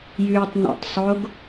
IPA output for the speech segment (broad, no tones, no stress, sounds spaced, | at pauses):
j ʉ tˤ n ṵ tˤ sˤ o ɡ